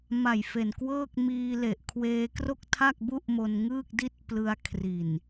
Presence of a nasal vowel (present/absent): absent